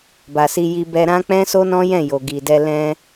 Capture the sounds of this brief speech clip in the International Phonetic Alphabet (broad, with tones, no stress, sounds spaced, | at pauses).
b a˨ s i˧ j i˧ b ɛ˧ ɾ ã˦ k͡p ɛ̃˦ s o˦ n ɔ̃˦ j ɛ̃˦˨ j o˨ ɡ i˨ d ɛ˧ l ɛ̃˧